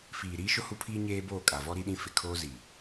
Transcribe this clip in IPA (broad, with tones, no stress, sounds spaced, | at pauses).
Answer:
f iː˨ ɾ iː˦ ʃ ʊ˦ h u˦ pʰ iː˦ ɲ eː˦ b oː˦˨ kʼ a˨ v ɔ˦ ɾ i˦ ɗ ĩ˦ f ɪ˨ kʰ oː˦ z i˨